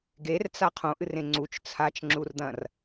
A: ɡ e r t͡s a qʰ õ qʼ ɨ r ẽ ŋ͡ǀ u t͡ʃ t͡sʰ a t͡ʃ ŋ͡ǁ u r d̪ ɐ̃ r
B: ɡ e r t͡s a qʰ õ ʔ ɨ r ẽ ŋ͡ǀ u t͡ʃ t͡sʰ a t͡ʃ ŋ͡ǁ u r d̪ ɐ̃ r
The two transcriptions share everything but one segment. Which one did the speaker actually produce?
B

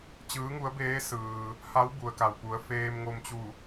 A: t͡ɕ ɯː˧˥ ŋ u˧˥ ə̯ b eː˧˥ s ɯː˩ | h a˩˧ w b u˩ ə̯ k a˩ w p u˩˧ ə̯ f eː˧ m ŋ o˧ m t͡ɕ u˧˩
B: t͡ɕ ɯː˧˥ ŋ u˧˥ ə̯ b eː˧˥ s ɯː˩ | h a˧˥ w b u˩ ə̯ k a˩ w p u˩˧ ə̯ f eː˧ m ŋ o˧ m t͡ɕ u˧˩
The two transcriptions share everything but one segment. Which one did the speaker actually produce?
B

